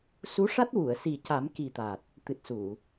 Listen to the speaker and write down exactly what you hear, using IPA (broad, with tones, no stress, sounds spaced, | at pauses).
s u˧˥ ʂ a˦˥ t̚ w u˨˩˨ ə̯ s i˨˩ c a˨˩˦ m k i˨˩ t̪ a˨˩ t̚ | t̪ ɨ˨˩ t̚ s u˨˩˨